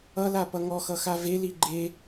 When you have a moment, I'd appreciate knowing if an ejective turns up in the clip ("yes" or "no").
no